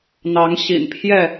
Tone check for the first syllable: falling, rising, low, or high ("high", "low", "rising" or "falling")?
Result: rising